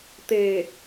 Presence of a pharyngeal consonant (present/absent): absent